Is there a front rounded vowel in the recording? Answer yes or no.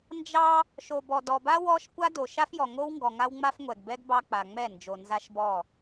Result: no